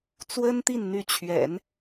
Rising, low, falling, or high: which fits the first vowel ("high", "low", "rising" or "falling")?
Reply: high